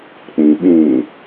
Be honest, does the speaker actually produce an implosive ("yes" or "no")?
yes